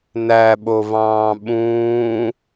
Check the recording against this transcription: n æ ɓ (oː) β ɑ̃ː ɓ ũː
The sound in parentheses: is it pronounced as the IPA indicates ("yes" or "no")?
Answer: no